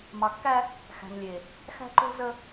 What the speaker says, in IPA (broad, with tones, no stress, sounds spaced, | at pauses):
m ɑ˨ kː æ˦ | x æ̤˨ m lʲ e˨ | x æ̤˦ ǃ o̤˦ z ə˦